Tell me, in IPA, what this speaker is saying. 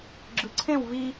ɡ͡ǁ ɯ ǀʰ ẽ w v i

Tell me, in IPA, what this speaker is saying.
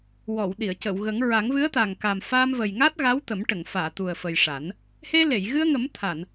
w ɔ˨˩˨ w ɗ i˨˩˨ ə̯ c ə˨˩˨ w ɣ ə˨˩˦ ŋ ɹ a˨˩˦ ŋ v ɨ˧˥ ə̯ t̪ a˨˩ ŋ k a˨˩ m f aː˧ m v ə˨˩ j ŋ a˦˥ t̚ ɣ a˧˥ w t̪ ə˨˩˦ m ʈ ə˨˩˨ ŋ f aː˨˩˨ t̪ u˨˩ ə̯ f ə˨˩ j ʂ a˨˩˦ n | h e˧ l e˨˩˨ j ɣ ɨ˧ ə̯ ŋ ə˨˩˦ m t̪ʰ a˨˩˨ n

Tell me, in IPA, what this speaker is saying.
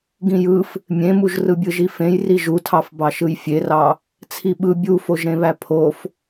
ɡ ĩ j ɯ f | mʲ ẽ m u ʒ r ɯ bʲ ɯ ʒ i f ẽ j r i ʒ u tʰ ɑ f b ɑ ʃ ɯ j fʲ e r ɑ | t͡sʰ i ɓ ɯ bʲ u f o ʒ ɾ ẽ β æ pʰ o f

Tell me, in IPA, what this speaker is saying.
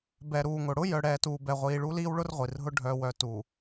b ɛ˨ ɾ uː˨ ŋ ʊ˨ ɽ ʊ˦ j œ˨ ɽ ɛː˨ t uː˨ b ɛ˨ ʁʷ iː˨ ɭ u˦ l iː˦ w ɭ ʊ˦ r ʁʷ i˨ r ɦ ʊ˦ ɖʱ œ˨ w œ˨ t u˨

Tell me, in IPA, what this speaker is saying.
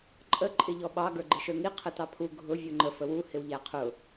ǃʼ ə ǃʼ ɪ ʎ ɔ ɓ ɑ ɡ ə˞ ɡ͡ǃ ɪ ʃ ə˞ ŋ i qʰ ə t ɑ pʰ u ɡʱ ʊ vʲ u ŋ͡ǃ ə f ə w u h ɪ w ʎ æ qʰ ʊ

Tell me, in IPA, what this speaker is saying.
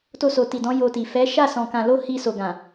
t o˧ s o˨ t i˨ d ɔ̃˨˦ j o˧ t i˨ f ɛ˨˦ ʃ a˦˨ s ɔ̃˨ k ã˨ l o˧ h i˧ s o˨ ɡ ã˨

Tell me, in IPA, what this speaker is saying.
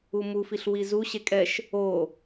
u m u f i ɬ w i z u ɕ e kʼ ɛ ʃ | o

